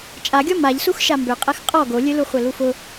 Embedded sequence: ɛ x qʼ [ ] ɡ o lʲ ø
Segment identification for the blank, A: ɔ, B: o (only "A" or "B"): A